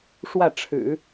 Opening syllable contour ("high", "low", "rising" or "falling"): falling